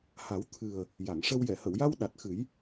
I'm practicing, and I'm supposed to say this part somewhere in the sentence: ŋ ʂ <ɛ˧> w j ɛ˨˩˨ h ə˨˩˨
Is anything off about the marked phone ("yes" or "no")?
yes